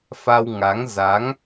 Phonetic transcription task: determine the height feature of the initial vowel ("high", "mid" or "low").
low